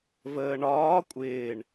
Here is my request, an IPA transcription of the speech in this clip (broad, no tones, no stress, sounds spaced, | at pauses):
v əː ɳ ɒː kʷʼ ɪː ɳ